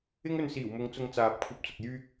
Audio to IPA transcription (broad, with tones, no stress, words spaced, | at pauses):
ɪ˥ŋɵ˧nsiː˨˩wmʊ˨˧ŋ t͡sʊ˧ŋt͡saː˨p̚ kʷʰɐ˧p̚t͡sʊ˨k̚ jyː˧k̚